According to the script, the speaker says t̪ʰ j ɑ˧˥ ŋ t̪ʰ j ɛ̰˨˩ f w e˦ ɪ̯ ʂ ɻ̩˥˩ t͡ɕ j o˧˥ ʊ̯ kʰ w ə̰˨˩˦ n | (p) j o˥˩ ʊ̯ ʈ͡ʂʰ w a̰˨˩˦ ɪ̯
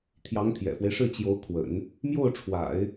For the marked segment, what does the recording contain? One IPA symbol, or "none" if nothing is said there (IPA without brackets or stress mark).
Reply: m